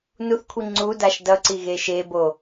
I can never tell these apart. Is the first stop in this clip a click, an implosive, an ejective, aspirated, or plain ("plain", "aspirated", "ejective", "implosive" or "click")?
aspirated